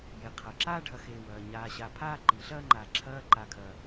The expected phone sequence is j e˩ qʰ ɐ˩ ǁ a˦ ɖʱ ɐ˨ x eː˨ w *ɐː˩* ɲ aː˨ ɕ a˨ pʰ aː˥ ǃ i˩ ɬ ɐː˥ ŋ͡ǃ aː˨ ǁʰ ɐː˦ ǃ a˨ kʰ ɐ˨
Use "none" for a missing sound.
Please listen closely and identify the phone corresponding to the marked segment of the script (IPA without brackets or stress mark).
ɐː˩